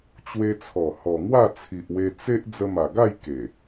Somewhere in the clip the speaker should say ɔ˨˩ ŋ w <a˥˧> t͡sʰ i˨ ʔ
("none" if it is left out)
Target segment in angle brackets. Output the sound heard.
a˥˧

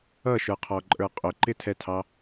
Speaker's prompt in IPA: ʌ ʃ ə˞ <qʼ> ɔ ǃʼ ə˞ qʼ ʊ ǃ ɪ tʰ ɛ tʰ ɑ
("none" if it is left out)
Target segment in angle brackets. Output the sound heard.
qʰ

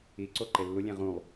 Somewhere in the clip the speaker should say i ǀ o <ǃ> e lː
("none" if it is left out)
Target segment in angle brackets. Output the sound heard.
ǃ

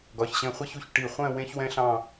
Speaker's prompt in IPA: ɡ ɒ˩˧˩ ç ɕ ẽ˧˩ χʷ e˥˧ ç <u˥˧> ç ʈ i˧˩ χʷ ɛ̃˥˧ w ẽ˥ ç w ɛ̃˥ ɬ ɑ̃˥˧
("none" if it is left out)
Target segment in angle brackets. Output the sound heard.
u˧˩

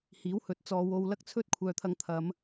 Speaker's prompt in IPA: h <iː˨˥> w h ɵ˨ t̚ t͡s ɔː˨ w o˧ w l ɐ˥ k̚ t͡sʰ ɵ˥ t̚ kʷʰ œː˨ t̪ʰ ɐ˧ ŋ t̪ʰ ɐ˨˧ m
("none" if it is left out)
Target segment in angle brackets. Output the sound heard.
iː˨˥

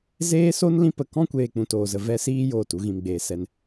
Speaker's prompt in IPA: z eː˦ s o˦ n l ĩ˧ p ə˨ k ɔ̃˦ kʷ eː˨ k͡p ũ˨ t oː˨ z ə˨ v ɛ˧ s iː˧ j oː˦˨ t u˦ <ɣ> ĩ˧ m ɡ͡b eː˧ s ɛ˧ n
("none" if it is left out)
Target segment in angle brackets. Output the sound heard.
ɣ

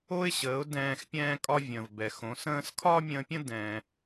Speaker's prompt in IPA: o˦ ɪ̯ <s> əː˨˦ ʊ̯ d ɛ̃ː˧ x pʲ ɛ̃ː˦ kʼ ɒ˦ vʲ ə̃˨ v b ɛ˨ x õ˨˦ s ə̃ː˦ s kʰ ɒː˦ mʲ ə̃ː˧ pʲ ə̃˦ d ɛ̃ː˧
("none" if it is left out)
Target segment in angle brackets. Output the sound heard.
ɕ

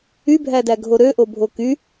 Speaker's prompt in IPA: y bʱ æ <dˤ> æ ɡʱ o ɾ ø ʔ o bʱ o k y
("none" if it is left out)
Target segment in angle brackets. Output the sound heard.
d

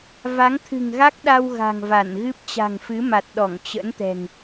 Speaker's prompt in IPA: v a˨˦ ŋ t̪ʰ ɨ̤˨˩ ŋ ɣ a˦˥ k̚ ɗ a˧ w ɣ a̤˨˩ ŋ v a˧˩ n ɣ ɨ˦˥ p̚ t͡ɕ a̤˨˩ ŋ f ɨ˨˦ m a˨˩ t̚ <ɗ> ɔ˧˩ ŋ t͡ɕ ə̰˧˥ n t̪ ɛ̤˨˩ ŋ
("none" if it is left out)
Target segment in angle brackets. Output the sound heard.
ɗ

